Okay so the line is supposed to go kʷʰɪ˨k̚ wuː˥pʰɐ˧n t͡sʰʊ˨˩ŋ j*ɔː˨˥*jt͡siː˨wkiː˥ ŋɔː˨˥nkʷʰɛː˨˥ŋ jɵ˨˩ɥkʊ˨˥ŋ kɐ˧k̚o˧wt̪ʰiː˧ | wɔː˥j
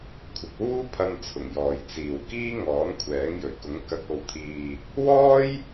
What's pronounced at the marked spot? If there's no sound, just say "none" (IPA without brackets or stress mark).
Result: ɔː˨